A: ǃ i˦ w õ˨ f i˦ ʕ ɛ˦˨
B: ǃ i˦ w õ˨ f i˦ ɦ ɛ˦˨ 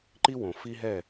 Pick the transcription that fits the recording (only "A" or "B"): B